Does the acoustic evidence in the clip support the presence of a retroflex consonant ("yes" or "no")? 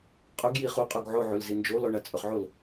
yes